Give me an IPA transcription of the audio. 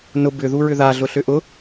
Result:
nʊ bʏðu ɹʏðaɮʊɬʏ ʔʊ

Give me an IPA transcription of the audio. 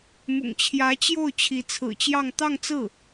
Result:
mʊ̰˨˩ŋt͡ɕʰjä˧˥t͡ɕjo˥˩ʊ̯ t͡ɕʰi˧˥t͡sʰɹ̩˨˩t͡ɕjɑ˥˧ŋ t̪ɑ˥˧ŋt͡sɹ̩˥˩

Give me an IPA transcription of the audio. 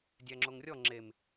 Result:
dʲæŋ͡ǁoŋrʲɔ ŋ͡ǁem

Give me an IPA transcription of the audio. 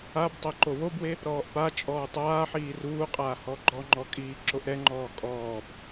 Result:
abtˤɛ ǃowobwe | ɾɔːʔpat͡ʃʼɔː tˤaːħiː ruːqʼaː hɔɡ͡ǃɔŋ͡ǃɔ kʼiːǁoʔɾɛŋ͡ǃɔː kʼɔːb

